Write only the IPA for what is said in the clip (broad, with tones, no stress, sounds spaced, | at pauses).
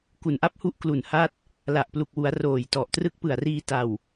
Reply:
k u˩˦ n ʔ a˦˥ p̚ h u˥˩ ʔ k l u˨˩ n h a˦˥ t̚ | l a˨˩ ʔ p l u˨˩ k̚ w u˩˦ a̯ r oː˨˩ j t ɔ˨˩ ʔ t r ɯ˦˥ k̚ p ɯ˨˩ a̯ r iː˧ t a˨˩ w